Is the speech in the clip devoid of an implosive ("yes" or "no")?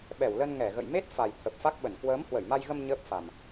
no